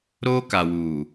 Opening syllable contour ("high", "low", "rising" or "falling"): high